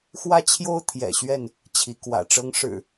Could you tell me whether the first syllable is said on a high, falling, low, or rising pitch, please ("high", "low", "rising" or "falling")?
high